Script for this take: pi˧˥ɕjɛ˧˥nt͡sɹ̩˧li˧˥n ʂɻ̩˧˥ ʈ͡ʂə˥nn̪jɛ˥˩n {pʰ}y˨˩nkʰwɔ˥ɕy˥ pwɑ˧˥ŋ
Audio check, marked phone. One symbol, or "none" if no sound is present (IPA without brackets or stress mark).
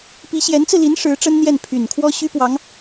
pʰ